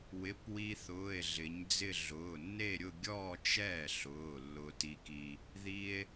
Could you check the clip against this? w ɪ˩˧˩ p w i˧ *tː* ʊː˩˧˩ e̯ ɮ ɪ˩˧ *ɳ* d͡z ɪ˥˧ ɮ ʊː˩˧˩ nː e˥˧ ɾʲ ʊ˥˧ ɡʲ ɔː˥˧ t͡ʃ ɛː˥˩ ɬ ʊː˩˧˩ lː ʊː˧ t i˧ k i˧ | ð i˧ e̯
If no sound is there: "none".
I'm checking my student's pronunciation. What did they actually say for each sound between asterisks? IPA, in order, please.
θ, ɲ

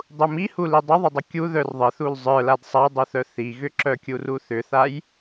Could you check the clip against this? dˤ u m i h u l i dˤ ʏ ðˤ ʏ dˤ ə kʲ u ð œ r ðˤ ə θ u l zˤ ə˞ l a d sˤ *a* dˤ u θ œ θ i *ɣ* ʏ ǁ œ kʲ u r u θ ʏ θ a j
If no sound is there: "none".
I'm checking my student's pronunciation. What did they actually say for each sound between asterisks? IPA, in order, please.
a, ɣ

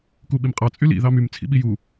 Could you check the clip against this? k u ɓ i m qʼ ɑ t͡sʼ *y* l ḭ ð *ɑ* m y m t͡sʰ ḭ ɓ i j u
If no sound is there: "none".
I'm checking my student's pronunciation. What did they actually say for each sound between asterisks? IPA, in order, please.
y, ɑ

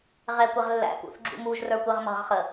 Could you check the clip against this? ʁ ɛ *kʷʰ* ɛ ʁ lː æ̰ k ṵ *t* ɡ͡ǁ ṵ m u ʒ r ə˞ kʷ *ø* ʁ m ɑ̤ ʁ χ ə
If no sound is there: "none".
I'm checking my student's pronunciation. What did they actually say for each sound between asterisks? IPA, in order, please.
kʷ, θ, ɛ

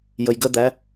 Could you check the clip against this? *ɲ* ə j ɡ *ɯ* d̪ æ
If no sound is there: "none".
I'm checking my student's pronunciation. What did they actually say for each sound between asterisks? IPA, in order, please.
j, ə

